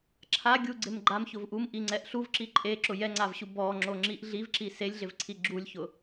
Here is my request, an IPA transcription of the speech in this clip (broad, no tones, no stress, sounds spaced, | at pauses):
ǁʰ a ɡʲ u ɡ͡ǀ ɪ m ɡ͡ǃ a m ç ʊ v ʔ u m ʔ i ŋ͡ǀ ɛ ʔ ɬ u v ǁ i ǃʼ e ǁ ʊ j ɛ ŋ͡ǀ a v ɕ u b ɔ ŋ͡ǁ o ŋ͡ǁ i ʔ ɮ i v ǁ i s e lʲ ɮ ɪ v ǀʰ i ɡ͡ǁ u lʲ ç ʊ